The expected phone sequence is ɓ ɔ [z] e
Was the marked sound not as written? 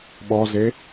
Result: no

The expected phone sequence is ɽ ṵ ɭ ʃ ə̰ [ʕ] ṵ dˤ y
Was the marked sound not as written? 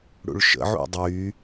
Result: no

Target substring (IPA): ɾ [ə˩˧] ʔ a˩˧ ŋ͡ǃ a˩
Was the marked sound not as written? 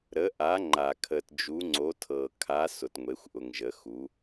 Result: no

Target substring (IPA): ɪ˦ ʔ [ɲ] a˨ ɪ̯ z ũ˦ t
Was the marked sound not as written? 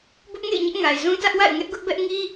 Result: yes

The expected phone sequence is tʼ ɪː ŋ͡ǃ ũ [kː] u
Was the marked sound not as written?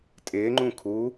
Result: yes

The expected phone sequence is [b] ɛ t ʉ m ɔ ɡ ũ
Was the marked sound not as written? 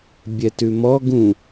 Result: yes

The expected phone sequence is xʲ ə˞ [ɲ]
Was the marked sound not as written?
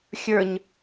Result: no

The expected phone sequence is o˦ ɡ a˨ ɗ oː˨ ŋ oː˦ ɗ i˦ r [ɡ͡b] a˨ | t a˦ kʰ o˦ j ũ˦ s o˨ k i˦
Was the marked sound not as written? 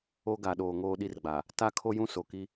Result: no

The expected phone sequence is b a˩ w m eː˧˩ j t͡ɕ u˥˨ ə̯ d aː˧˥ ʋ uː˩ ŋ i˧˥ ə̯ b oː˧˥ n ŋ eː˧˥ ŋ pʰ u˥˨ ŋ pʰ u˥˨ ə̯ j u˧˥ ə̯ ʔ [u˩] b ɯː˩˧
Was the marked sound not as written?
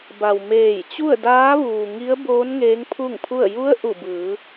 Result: yes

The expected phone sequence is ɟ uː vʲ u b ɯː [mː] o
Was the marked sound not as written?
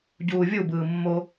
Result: no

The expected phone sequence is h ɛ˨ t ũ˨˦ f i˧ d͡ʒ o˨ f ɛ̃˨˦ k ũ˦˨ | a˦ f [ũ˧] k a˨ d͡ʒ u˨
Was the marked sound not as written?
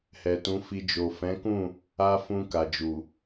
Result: no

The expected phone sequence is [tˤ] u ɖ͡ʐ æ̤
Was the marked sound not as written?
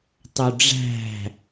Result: no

